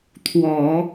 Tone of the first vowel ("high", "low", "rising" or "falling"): low